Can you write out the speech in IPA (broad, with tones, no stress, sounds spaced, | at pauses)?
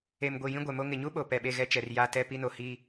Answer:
e˨ m ɡʷ i˨ j ĩ˦ ɡʷ ɛ˨ m o˦ ŋ ɪ˨ ɲ u˦ ɓ o˨ p ɛ˨ ɓ e˦˨ ɣ ɛ˦ t͡ʃ ɛ˨ r j a˦ t ɛ˦ p i˦ n o˨ h iː˦